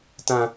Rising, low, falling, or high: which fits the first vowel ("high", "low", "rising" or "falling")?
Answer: high